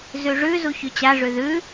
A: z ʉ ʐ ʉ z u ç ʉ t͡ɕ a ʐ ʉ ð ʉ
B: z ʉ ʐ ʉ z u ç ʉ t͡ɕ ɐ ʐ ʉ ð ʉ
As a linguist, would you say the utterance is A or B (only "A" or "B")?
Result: A